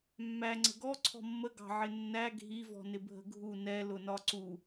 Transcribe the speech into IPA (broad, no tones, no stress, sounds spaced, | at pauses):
mː æ ŋ͡ǀ ə̤ ɡ ɔ ǀʰ ɔ̤ mː ə ɡ ɑ̤ ʕ ɪ nː æ ɡʱ i v ɔ̤ n ɪ bʱ ə̤ ɡʱ u n ɛ l ʊ n ɒ ǀ u